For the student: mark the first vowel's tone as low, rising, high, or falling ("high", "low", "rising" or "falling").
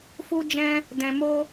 high